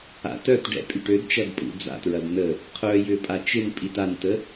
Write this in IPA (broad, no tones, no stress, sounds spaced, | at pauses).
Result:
a̰ t œ t ɖ ɛ̰ pʼ y ʈ ø d t͡ʃ ɐ d pʼ ṵ d͡z a̰ t ɹ ɐ d n ə | qʰ œ j ʏ pʼ a t͡ʃ ɪ n pʼ i t a n t ə